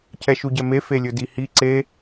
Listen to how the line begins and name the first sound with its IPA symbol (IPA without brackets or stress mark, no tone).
cʰ